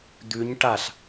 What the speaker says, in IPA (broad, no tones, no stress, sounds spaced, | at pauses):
d̪ ʉ ɲ ʈ a ɬ